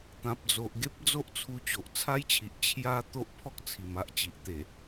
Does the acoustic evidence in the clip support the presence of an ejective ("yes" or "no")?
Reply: no